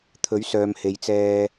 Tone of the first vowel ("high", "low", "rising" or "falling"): rising